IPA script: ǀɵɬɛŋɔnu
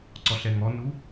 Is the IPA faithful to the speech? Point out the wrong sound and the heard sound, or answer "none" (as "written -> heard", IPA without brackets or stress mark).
ɵ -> ɔ